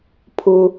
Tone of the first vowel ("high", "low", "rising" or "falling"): low